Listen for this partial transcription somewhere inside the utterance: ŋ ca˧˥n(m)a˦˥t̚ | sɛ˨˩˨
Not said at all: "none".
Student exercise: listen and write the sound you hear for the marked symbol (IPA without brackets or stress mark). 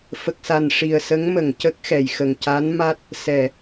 m